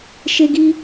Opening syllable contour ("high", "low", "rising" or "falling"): high